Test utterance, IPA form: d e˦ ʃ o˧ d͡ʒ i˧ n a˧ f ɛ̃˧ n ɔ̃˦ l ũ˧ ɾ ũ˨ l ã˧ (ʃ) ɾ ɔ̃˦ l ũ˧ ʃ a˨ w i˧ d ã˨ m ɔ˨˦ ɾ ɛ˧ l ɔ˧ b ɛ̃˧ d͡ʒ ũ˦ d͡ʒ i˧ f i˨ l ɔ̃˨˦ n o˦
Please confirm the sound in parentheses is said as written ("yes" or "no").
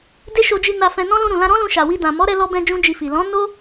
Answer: no